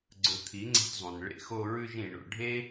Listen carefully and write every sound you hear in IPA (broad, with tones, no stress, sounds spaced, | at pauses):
ɡ͡ǀ ɵ˨ t̪ʰ i˨˦ ŋ͡ǀ e̤˧ t zˤ ũ˨ n ɭ ḛ˧ x o˧ ɹ ʉ˧ ʒ ĩ˨ ɳ o̰˨ ɖʱ e˦